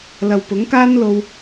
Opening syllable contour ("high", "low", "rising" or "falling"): low